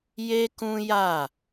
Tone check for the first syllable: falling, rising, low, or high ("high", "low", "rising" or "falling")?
high